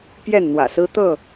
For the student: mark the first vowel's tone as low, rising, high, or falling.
falling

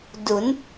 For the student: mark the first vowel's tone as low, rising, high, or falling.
rising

